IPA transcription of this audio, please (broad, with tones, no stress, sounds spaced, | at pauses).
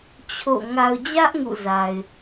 t͡ɕʰ o̰˦˨ ŋ a˨ ʊ̯ d͡ʑ ä˦ ʔ ŋ ṵ˦˨ z a˨ ɪ̯